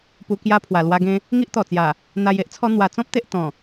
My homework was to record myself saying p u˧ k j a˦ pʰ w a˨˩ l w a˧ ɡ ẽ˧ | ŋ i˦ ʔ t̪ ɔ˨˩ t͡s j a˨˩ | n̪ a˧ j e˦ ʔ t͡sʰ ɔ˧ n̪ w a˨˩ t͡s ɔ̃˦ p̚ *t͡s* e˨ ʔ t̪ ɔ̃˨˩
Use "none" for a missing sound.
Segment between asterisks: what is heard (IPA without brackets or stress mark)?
t̪